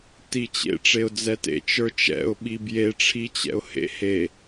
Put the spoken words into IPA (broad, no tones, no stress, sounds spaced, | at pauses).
t i t͡ɕ ḛ ʈ͡ʂ e ʊ̯ d͡z ɛ t ḛ t͡ʃ ə˞ t͡ʃ ɛ̰ ʊ̯ ɓ i b j e ʈ͡ʂʰ i t͡ɕ ɛ̰ ʊ̯ h ḛ h e